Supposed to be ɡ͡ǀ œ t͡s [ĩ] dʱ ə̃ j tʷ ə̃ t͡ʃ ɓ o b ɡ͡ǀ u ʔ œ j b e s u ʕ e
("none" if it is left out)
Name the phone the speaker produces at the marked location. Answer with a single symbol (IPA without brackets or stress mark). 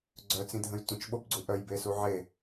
ĩ